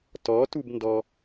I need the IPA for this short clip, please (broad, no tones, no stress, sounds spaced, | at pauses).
t ɔ t u b n d ɔ